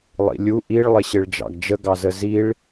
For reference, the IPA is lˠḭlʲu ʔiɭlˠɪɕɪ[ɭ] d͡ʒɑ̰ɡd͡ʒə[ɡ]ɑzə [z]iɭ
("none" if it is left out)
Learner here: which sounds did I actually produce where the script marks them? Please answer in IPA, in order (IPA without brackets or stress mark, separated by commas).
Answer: ɭ, ɡ, z